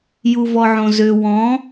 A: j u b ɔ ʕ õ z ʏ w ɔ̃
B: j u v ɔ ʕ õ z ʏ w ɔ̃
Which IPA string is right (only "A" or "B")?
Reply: B